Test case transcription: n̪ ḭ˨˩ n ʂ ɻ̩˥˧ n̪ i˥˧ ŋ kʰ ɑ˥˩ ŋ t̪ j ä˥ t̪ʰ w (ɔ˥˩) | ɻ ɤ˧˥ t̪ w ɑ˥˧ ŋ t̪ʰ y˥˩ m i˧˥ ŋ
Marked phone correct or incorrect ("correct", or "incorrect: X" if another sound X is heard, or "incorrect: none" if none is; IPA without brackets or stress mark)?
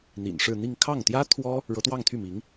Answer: incorrect: ɔ˥